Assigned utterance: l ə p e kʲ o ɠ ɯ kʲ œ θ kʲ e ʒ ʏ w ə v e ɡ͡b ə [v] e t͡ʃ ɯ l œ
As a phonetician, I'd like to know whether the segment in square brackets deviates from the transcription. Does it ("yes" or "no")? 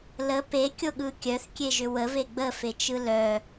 yes